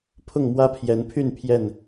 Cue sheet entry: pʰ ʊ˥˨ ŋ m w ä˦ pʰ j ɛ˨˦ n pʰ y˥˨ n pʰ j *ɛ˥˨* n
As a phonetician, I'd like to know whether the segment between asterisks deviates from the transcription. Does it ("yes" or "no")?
no